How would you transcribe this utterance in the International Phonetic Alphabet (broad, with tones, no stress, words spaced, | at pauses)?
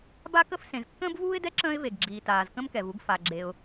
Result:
ba˥kə˥f sẽ˩zkːə̃ː˥bvuː˥ɪ̯dɛ˥ ǁə̃ː˥ɪ̯ve˩ɡɡ͡ǁiː˩ taː˩zkə̃˥mkɛ˩vu˥ɡ fa˩ɡ͡ǁe˩ʊ̯